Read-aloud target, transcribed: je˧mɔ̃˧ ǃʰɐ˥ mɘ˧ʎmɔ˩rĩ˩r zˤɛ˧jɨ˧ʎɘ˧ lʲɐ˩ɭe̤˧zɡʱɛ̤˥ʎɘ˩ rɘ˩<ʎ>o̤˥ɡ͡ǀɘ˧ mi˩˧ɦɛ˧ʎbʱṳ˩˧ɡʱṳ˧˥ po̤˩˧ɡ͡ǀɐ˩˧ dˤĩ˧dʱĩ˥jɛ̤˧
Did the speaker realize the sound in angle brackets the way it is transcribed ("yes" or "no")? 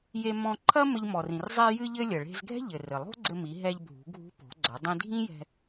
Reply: no